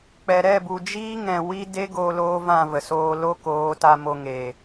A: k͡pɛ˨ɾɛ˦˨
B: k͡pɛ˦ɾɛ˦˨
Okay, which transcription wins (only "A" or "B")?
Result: A